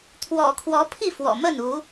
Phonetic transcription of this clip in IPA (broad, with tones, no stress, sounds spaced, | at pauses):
t̪ʰ w ɔ̰˨˩ kʰ w ɔ˨˦ pʰ i˥˨ f w ɔ̰˨˩ m ə˥˨ n u˨˦